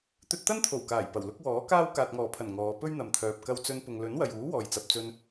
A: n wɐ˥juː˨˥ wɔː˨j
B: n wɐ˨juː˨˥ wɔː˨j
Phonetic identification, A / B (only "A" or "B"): B